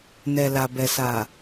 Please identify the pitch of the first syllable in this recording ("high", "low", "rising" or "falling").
low